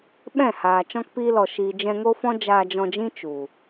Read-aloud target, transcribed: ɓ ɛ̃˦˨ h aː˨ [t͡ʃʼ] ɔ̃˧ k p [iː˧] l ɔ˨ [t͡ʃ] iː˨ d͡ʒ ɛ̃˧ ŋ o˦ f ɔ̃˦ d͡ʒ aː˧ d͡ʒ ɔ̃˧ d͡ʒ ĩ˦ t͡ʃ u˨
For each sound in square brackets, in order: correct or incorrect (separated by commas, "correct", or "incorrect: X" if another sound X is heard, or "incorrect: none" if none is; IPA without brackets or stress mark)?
incorrect: t͡ʃ, correct, incorrect: ʃ